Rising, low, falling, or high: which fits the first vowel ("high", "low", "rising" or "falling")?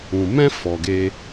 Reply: low